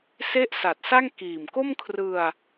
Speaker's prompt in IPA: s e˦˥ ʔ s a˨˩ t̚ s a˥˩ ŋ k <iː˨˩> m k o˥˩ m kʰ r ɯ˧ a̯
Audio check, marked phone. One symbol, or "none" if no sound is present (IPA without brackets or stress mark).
iː˨˩